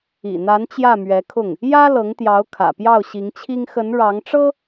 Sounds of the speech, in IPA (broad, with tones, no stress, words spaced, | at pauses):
ḭ˨˩n̪a˧˥n t͡ɕjä˥˩mɥɛ˧˥kʰʊ˥˩ŋ | jä˥lɤ˧˥ŋt̪jɑ˧˥ʊ̯ kʰä̰˨˩pjɑ˥˩ʊ̯ɕi˧˥ŋt͡ɕʰi˥ŋ xə˧˥n ɻɑ˧˥ŋʈ͡ʂɤ˥